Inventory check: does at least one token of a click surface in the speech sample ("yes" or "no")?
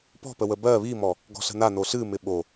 no